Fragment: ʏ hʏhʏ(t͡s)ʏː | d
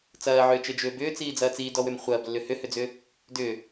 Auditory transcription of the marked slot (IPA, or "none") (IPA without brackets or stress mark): d͡z